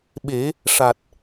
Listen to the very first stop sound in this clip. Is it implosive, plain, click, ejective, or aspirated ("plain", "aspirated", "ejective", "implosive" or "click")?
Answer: implosive